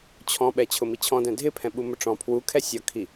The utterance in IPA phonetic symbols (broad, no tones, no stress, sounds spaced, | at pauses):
t͡ɕʰ ɔ̃ ɓ ɛ t͡ɕʰ ʊ m i t͡ɕʰ ɔ̃ d ɛ̃ dʱ ɪ pʰ ɛ̃ ɓ u m ʊ ʈ͡ʂ ɔ̃ pʰ w u kʰ ɛ sʲ ɔ kʰ i